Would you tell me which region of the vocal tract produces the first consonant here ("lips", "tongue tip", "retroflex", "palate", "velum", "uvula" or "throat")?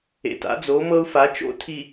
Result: tongue tip